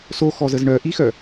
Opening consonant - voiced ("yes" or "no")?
no